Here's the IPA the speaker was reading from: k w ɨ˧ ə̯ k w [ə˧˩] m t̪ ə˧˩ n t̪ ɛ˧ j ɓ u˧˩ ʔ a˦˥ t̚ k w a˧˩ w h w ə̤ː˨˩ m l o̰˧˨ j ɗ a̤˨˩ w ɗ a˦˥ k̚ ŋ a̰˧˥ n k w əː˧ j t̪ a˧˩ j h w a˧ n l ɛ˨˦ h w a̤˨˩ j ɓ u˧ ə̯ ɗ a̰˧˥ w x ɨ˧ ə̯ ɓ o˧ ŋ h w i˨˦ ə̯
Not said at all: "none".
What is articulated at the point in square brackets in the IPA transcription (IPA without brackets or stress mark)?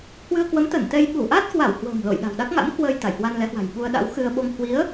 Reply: ə˨˦